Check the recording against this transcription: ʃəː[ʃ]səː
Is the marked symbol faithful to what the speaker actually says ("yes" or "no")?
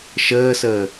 no